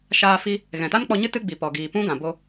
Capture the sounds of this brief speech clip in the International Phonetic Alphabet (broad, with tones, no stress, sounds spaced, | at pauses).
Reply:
ʃ aː˧ f i˧ | ɣ ɛ̃˨ t a˦ n k͡p ɔ˧ ɲ ɨ˦ t ɨ˦ ɡ͡b i˨ p ɔ˨ ɡ iː˨ p ũ˦ ɡ ã˨ b o˧